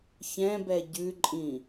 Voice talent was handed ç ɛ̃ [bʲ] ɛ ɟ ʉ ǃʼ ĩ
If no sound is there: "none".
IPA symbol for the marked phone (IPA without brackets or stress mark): b